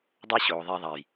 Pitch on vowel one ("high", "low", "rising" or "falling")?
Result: high